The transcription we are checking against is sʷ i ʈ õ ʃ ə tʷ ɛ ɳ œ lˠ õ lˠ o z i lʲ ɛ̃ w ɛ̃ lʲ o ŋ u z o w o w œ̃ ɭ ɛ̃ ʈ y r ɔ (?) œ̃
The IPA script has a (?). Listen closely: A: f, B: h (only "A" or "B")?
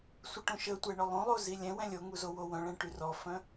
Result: A